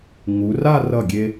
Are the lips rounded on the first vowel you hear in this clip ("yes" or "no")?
yes